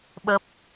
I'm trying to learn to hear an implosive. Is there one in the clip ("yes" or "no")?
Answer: yes